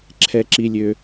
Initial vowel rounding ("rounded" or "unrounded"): unrounded